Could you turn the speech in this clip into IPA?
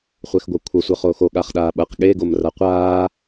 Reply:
χʷ ɛ x ɡʷ ɐ kʷʰ ʌ sʷ ʌ χ oː x o ɠ a χ ɗ aː ɓ ɐ q ɠ e ɡ o m r a qʷ aː

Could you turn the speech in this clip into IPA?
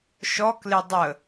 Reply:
ʃ ɔ k l e dˤ ə

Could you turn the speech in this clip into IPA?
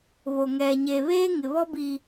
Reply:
β o˨ ŋ ɛ˨ ɲ e˨ β eː˦ ŋ ɪ˨ β ɔ˦ b i˨

